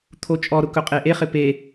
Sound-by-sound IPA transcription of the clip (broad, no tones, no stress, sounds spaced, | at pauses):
t̪ʰ o t͡ʃʼ ɔ ɾ ʊ k ɵ qʼ e ʔ e χ ɪ p e